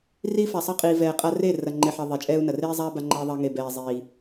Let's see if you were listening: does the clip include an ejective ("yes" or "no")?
yes